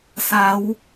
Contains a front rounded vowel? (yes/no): no